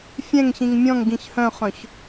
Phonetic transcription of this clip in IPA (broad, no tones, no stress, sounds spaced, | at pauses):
fʲ ɛ̃ ŋ ç ĩ ŋ mʲ ɔ̃ ŋ ɡ ĩ ç h œ̃ χ œ̃ ç